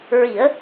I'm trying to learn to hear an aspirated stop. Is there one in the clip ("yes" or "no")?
no